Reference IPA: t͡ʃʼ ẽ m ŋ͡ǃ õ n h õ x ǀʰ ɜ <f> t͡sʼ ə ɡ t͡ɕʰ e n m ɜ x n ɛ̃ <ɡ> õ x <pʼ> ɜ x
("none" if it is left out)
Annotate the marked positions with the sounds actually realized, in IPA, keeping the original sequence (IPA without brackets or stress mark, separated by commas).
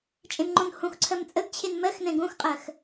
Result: m, ɡ, qʼ